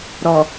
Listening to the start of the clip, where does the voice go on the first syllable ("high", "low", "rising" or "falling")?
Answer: low